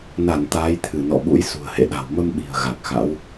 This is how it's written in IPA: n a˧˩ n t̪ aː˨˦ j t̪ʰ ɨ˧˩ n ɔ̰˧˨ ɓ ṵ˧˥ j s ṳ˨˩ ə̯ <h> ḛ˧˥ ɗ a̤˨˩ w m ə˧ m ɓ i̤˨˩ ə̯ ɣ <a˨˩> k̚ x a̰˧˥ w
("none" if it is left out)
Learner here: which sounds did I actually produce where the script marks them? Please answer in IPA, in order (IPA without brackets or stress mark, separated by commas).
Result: h, a˨˩